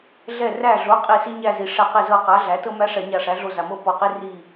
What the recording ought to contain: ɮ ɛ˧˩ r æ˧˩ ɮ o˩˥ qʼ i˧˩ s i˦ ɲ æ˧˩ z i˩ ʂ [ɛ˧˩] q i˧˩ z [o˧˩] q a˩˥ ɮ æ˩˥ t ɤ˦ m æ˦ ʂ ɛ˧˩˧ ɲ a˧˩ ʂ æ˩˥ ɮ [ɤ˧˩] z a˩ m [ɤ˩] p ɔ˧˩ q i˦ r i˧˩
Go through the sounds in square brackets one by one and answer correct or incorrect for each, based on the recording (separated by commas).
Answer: incorrect, incorrect, incorrect, incorrect